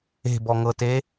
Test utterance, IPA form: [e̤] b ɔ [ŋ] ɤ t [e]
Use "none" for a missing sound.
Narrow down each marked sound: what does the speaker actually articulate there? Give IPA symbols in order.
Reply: e̤, ŋ, e

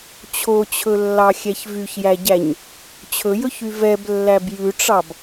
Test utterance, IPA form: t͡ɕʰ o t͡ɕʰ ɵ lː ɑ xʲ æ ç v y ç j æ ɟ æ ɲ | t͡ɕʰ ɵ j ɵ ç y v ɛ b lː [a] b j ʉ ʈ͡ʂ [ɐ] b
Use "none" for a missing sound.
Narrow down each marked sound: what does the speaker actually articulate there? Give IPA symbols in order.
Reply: æ, ɑ

